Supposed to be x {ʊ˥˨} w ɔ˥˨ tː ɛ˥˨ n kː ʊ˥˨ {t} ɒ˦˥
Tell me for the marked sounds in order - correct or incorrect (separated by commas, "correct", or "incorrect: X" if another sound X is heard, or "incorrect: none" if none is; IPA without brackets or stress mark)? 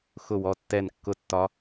correct, incorrect: tː